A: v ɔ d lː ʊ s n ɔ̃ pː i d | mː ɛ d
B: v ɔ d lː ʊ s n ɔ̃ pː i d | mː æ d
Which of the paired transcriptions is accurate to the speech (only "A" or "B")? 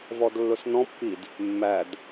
B